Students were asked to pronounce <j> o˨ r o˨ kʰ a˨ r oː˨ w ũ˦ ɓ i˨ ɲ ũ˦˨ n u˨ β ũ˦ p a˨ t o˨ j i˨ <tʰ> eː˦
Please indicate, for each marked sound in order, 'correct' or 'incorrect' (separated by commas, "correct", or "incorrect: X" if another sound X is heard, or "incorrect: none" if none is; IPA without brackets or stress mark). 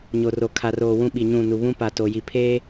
incorrect: ɲ, incorrect: pʰ